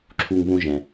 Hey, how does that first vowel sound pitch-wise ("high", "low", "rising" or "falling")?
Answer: high